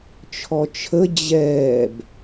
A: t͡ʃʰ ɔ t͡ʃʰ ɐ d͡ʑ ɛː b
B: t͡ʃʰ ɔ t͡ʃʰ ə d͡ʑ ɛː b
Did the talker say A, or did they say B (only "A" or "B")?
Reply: B